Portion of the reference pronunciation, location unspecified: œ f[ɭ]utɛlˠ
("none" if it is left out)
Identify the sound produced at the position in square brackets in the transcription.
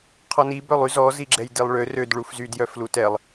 l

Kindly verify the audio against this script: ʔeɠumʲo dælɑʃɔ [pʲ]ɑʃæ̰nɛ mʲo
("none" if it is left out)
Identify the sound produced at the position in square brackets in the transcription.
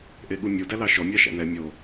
mʲ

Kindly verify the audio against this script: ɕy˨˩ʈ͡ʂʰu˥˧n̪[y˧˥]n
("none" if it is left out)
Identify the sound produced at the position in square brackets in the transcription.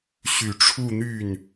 y˥˩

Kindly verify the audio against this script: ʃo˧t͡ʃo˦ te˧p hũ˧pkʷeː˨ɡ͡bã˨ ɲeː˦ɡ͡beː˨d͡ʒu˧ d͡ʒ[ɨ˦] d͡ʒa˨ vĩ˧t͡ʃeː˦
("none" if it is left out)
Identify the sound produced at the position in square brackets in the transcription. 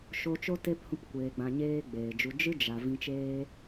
ɨ˦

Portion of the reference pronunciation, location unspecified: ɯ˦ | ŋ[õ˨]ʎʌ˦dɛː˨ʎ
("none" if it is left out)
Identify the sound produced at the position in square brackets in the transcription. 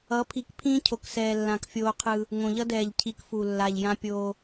õ˨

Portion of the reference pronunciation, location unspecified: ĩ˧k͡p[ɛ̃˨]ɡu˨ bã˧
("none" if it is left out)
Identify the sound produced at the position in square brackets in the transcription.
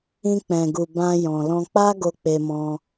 ɛ̃˨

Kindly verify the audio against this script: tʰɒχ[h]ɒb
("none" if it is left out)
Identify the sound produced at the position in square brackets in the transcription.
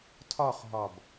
ɦ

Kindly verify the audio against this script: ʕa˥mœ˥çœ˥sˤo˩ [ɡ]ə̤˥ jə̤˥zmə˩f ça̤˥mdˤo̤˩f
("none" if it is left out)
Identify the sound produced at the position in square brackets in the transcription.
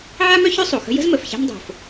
x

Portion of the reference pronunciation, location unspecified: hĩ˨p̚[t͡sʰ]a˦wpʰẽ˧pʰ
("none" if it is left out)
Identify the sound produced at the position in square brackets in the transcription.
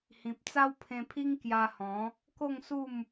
t͡s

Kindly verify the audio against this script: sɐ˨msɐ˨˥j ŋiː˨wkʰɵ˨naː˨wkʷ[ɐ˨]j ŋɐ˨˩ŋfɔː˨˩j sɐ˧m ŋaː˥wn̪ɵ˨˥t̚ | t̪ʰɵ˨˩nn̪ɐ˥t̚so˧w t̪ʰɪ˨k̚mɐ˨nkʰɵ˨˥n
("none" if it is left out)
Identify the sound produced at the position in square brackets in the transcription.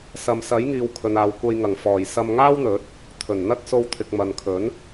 ɐ˧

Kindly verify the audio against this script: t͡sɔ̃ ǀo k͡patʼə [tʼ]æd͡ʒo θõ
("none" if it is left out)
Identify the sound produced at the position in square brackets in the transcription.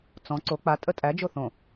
tʼ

